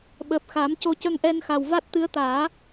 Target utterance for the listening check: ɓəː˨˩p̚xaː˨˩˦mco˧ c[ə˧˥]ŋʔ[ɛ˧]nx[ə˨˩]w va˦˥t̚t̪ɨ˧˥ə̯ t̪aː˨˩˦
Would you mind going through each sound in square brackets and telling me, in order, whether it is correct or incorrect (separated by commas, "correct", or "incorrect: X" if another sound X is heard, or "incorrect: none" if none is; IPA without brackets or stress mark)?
incorrect: ə˧, correct, incorrect: a˨˩